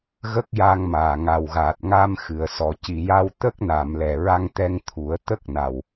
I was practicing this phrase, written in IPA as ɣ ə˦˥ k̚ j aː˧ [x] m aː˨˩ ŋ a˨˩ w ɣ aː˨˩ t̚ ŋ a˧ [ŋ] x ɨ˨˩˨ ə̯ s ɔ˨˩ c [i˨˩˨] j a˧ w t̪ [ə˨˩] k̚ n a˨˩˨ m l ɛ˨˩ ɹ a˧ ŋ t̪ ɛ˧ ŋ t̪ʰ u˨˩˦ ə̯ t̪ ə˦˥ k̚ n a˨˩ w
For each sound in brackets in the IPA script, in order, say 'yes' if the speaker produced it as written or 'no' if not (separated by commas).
no, no, yes, no